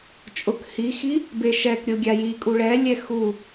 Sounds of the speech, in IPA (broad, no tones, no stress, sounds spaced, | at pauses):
t͡ʃʼ ʊ k h i x i | b e ʃ ɛ k ɾʲ o ɡʲ a j i kʼ u ɭ ɛ lʲ ɛ x u